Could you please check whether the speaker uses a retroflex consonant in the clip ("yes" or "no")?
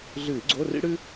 yes